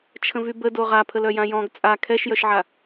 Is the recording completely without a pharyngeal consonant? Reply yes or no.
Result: no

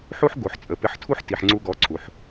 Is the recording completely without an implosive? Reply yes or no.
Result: yes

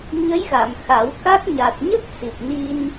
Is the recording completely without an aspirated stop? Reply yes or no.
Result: yes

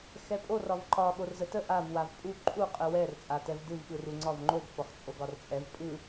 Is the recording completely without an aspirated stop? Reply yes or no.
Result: yes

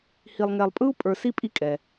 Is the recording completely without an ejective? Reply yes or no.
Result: no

